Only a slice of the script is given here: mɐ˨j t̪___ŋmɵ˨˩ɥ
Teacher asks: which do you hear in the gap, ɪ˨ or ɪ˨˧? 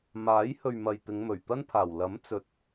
ɪ˨˧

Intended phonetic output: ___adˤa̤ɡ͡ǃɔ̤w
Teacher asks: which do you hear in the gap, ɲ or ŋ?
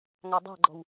ŋ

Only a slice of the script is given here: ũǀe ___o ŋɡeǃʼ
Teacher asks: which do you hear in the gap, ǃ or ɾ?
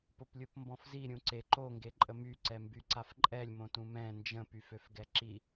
ǃ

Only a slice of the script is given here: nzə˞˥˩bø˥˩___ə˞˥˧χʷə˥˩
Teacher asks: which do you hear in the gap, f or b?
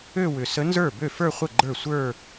f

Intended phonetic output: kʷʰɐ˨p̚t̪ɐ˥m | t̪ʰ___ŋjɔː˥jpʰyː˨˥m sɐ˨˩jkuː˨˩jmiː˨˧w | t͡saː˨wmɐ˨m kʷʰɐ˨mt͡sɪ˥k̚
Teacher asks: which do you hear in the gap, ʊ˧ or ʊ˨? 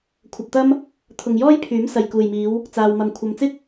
ʊ˨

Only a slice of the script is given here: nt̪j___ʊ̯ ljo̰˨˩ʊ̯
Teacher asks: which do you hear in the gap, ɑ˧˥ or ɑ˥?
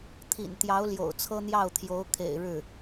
ɑ˧˥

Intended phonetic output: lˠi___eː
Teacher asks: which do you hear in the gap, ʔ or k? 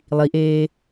ʔ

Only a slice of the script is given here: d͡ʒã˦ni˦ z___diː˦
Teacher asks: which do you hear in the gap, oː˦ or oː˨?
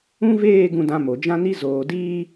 oː˨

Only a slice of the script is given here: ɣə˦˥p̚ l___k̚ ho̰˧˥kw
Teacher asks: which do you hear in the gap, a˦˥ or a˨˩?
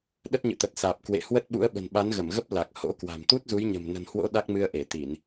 a˨˩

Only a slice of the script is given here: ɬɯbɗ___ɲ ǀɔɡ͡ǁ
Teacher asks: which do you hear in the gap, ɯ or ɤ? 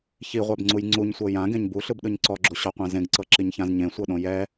ɯ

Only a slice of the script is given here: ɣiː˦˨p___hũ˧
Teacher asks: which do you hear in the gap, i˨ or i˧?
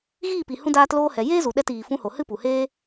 i˨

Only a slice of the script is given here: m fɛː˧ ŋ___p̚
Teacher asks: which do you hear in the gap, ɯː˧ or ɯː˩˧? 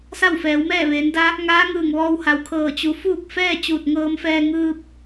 ɯː˧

